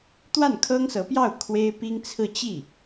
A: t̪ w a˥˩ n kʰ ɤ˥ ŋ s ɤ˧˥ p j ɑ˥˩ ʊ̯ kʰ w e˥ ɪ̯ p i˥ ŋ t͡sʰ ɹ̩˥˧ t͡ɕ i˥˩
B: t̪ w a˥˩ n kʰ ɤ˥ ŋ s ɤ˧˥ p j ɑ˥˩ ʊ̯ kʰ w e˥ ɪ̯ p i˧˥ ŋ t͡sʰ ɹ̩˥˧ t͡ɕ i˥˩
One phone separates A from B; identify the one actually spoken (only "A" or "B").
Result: A